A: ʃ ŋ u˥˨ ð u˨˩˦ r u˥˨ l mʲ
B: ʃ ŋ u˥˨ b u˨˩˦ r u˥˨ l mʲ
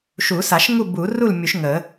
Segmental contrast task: B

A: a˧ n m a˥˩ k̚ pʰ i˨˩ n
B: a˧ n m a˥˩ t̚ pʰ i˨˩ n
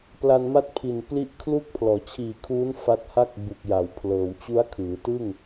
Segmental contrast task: B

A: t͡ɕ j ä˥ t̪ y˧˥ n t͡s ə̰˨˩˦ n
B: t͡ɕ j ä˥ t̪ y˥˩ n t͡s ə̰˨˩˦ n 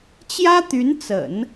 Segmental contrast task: A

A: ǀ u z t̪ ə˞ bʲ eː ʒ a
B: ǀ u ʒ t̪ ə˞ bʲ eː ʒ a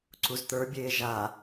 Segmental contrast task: A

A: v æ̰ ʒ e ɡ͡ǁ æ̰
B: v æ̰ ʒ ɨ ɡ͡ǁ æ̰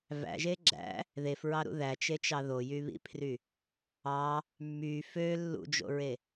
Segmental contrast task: A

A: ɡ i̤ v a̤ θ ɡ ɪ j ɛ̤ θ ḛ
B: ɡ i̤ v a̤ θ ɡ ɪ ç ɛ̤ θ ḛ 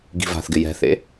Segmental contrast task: A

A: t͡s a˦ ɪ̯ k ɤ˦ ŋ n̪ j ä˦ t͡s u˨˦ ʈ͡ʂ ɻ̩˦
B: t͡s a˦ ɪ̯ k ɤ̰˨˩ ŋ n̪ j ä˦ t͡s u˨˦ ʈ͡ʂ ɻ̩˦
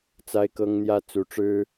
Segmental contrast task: A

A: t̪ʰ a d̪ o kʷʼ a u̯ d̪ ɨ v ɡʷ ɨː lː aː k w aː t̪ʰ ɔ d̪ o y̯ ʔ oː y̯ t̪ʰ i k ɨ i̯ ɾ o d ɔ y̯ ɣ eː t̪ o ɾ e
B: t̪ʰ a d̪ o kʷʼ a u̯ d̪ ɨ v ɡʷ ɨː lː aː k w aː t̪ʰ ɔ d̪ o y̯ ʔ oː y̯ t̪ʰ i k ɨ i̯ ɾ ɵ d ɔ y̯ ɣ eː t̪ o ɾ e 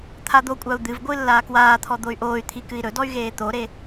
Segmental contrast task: B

